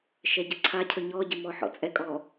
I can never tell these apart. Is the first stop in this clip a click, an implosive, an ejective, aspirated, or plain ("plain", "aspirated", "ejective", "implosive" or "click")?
plain